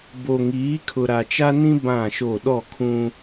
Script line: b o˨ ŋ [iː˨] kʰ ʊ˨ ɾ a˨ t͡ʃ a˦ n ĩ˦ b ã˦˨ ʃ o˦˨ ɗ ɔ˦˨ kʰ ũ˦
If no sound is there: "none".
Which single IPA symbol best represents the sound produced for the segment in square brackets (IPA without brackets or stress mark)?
iː˨˦